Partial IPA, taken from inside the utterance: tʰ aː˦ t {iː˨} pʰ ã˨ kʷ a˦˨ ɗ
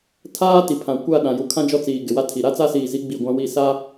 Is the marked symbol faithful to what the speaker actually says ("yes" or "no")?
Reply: no